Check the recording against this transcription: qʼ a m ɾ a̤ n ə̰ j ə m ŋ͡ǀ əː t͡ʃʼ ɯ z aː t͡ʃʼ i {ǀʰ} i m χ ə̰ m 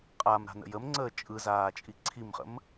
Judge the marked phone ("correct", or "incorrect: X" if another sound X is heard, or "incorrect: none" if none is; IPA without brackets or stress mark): correct